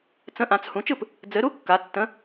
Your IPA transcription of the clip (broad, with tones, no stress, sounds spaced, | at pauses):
t͡s ə̃˨˥ ʔ ã˩˧ t͡s h ũ˩˧ t͡ʃ ɯ˥˩ p | d͡z ɘ˩˧ ɾ u˨˥ kː a˩˧ tː ə̃˨˥